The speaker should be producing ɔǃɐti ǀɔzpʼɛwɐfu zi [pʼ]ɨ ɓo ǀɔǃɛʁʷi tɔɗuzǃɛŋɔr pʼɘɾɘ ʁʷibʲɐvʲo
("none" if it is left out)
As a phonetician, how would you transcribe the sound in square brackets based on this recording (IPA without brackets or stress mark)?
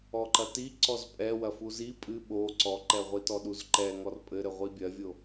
pʼ